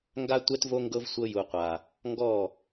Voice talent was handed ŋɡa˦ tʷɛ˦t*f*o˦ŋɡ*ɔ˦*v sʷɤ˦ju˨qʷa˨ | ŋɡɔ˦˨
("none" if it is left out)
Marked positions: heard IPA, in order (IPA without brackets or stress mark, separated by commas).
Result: v, ɤ˦